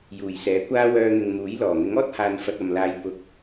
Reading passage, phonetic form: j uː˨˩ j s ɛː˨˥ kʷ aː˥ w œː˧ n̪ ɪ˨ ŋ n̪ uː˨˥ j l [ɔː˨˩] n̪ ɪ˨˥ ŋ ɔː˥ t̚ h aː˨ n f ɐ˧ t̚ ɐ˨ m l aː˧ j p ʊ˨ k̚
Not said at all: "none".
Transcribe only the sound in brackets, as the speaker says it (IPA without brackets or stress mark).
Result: ɔː˨˩